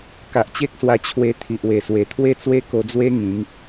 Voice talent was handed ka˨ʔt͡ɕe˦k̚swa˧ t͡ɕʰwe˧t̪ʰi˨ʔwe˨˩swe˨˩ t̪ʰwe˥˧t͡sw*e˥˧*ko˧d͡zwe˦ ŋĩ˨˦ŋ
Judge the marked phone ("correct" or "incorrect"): incorrect